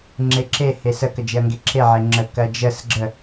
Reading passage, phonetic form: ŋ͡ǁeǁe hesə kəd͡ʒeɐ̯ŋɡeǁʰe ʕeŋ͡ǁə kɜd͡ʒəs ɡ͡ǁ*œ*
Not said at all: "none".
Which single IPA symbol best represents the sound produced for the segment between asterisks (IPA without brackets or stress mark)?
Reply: ə